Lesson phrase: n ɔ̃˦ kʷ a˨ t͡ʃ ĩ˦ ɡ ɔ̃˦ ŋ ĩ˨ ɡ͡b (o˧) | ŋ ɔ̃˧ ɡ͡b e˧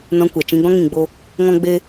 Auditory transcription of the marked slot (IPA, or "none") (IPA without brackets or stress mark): o˧